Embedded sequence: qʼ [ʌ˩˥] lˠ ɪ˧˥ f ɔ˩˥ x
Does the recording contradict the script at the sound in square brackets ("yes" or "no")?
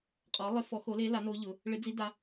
yes